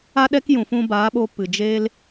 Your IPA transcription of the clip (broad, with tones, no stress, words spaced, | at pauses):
a˦ɗɛ˦kjũ˨fũ˧ baː˨˦ɓo˧ pɨ˨ d͡ʒeː˦l